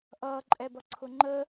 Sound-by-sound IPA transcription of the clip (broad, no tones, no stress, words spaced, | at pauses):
ʔʌː ǃʼɛbʌǀʰʊŋ͡ǃəː